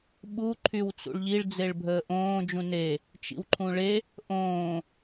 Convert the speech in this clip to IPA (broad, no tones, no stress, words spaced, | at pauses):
ɓu ǃʰywt͡sṵɭʎiɭ d͡zeɭbʱəːʔõː d͡ʒũne | t͡ʃḭwǃʰũɭe | ʔõː